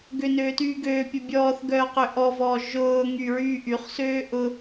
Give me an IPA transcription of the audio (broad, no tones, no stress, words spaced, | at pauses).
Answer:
ɡønøːtyːɡøː pʲʊbʲɔːθɡœːqø ʔɔvɔː ʒʊːŋy ɹyːʔyχsøː ʔʊ